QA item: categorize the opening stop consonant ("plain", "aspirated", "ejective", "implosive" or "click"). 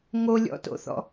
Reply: plain